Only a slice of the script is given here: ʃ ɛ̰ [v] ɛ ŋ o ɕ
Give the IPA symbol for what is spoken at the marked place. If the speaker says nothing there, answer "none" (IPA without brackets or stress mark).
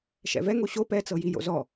v